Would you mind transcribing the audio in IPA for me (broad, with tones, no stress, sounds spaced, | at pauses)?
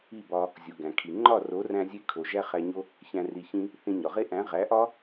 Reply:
i˦˨ b ɒ˧ | zʲ u˨ ɡ æ̃˨ kʰ i˨ ŋ͡ǃ ɒ˦˨ r o˨˦ r æ̃˧ zʲ e˧ kʰ o˨ ʒ æ˦ χ æ˧ ɲ o˦ | ç æ̃˨ r i˨ ç ĩ˧ | θ ĩ˧ ɲ ɒ˨ ʁ e˦ ʔ æ̃˨˦ ʁ æ˨˦ ʔ ɒ˦